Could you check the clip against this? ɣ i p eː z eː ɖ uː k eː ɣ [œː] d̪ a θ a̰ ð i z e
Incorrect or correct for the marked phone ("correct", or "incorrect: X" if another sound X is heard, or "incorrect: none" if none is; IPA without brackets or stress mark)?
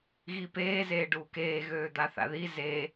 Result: incorrect: øː